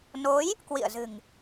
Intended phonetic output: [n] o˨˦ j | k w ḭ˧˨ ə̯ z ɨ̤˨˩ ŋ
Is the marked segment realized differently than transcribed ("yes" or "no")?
no